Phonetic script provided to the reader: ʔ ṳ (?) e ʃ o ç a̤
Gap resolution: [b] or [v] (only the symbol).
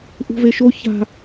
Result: v